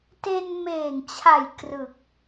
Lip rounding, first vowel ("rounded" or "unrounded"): unrounded